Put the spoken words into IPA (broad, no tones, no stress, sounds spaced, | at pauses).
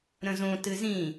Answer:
ɾ ə̃ z õ t ɨ z ĩ